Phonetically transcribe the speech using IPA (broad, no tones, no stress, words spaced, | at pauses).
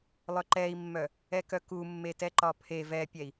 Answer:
lˠœǃɛi̯mːœ | ɛkœku mːetɛǃɒpʰe vɛpʲɛi̯